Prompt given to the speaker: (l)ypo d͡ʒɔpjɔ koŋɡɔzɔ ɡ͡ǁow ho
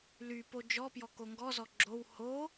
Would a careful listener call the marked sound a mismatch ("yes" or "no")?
no